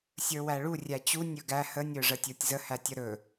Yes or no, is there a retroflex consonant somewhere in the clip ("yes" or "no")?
yes